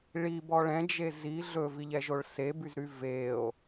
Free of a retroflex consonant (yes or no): no